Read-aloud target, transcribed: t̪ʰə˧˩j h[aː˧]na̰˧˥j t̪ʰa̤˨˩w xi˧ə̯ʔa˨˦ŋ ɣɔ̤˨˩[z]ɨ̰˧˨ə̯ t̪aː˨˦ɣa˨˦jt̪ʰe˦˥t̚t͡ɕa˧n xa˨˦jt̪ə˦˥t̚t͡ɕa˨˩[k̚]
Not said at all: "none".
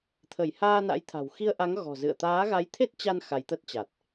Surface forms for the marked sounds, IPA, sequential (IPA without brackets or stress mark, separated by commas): aː˧, z, t̚